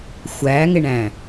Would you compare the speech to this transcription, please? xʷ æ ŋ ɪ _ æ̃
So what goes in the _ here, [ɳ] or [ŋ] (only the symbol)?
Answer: ɳ